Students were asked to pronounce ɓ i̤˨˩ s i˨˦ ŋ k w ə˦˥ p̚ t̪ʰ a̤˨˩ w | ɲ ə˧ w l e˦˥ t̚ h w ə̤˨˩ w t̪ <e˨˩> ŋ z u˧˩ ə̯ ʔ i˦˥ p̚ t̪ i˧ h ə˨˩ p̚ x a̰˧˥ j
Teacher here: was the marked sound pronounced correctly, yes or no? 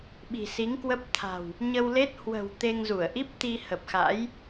no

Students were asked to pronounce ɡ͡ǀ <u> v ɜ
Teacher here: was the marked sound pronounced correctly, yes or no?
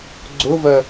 no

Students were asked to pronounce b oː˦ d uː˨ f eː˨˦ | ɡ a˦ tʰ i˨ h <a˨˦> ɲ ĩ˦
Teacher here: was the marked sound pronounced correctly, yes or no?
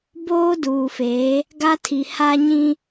no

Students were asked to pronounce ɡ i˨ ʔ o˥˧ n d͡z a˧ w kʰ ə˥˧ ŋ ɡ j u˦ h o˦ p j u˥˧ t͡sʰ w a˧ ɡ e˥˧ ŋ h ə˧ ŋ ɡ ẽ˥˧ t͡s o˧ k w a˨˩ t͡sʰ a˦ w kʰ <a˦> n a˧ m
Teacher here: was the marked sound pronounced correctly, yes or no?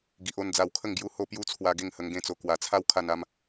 no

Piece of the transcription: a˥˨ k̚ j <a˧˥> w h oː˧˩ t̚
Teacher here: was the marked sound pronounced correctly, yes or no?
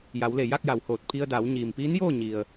no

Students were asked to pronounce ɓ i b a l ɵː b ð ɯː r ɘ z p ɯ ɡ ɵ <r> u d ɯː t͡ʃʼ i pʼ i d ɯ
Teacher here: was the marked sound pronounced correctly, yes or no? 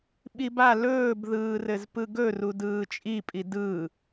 yes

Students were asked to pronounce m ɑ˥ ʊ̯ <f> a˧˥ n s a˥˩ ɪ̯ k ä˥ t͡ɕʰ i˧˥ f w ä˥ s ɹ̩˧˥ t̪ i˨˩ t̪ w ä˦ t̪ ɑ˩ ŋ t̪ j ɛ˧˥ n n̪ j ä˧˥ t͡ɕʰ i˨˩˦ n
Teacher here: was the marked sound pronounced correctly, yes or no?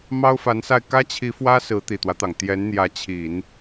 yes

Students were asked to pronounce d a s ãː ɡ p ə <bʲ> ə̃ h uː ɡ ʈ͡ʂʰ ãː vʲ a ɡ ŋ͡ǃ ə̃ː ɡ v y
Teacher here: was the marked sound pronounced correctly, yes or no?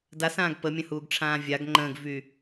no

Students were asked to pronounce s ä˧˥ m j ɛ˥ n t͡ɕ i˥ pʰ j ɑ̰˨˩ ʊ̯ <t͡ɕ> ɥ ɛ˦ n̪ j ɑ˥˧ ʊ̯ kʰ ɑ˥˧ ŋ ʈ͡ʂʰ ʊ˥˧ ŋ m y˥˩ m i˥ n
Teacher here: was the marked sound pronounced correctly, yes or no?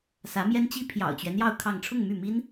yes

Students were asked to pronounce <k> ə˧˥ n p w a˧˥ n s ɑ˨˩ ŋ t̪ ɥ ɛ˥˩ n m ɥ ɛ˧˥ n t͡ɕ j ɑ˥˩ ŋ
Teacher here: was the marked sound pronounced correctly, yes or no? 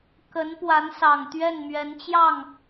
yes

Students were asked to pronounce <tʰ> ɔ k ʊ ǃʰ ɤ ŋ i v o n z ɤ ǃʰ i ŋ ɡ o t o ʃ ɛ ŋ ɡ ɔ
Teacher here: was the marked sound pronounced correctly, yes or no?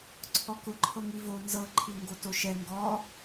no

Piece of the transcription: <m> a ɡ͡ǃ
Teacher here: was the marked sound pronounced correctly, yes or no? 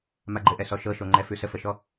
yes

